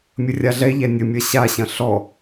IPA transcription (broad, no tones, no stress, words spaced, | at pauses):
mʲərʲaɮɛʎæ nʲəmʲɐ ɕaɕɐ̃ ɬɔ